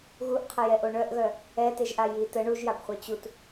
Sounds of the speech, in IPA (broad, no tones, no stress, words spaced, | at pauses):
ɣuʔqʰəjɛʔo ɳœʔɣœ | ɛteʒʔa ji tə ɳuʒjabχʷœ t͡ɕut